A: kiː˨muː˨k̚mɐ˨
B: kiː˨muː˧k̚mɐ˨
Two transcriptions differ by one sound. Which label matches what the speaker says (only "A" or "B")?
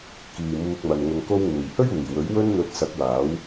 B